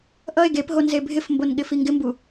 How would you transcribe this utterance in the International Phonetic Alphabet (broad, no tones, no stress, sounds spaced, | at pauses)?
ʔ ʌ e̯ ɡ e p ɦ o n z e bʱ ɪ f m b o n ɠ ɪ f i ŋ ɡ ɪ m b u